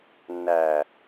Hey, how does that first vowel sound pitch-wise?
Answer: low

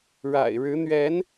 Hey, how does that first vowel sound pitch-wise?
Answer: low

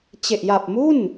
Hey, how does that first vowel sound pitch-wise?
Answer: low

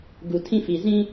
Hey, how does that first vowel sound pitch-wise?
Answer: low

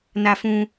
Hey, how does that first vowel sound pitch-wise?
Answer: high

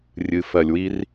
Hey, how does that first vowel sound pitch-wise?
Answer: low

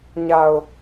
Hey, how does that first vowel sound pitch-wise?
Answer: low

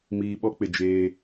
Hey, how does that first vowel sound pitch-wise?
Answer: low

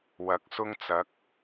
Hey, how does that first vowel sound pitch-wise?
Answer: rising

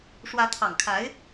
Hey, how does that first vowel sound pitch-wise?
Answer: rising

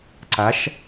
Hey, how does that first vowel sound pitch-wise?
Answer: rising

